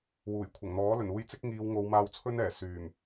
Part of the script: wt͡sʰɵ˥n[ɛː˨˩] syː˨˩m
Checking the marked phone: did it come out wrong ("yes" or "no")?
no